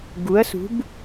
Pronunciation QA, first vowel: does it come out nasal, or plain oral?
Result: oral